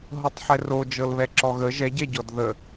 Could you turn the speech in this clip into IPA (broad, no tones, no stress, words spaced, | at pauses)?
ɦɤtˤħɛro d͡ʒɤlβɛǁɔɣə ʒɛɟɛɟɔd ðə